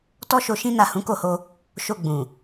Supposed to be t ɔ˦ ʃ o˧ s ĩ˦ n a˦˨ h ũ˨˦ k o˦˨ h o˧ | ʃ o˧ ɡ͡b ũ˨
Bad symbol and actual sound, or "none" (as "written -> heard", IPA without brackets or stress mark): s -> ʃ